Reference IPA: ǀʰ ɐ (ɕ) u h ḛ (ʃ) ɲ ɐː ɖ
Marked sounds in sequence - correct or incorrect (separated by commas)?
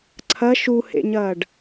incorrect, incorrect